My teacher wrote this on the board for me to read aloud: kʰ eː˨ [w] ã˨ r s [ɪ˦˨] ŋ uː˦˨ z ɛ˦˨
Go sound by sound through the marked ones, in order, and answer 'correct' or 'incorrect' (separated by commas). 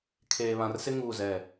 incorrect, incorrect